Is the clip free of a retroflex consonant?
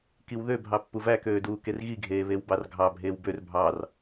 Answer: yes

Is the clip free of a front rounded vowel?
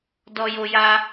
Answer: yes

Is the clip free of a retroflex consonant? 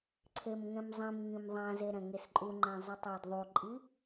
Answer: yes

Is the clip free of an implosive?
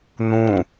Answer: yes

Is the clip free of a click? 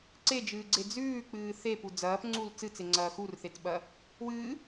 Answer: no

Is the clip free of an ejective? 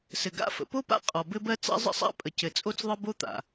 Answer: no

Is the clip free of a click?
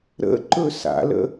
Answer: no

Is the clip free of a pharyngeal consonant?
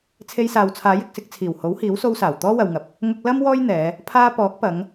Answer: yes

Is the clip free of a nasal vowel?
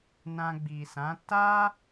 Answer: no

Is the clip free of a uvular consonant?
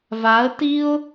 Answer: yes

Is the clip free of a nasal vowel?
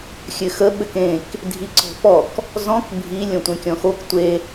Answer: no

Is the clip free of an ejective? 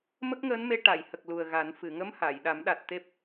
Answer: yes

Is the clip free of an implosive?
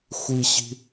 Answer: yes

